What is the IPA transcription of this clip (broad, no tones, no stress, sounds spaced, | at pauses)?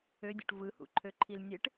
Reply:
ø dʲ ṵ ʈ v ɯ h ṵ ǃʰ ø ǃʰ i l nʲ e ʈ